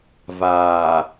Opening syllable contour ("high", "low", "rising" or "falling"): low